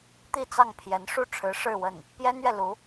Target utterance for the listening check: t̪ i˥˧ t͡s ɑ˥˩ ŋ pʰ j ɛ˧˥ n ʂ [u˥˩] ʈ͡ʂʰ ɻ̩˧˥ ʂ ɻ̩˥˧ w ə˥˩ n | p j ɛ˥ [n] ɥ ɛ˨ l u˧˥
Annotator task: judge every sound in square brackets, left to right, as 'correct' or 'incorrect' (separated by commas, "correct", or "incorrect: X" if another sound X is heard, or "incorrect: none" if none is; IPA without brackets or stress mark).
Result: correct, correct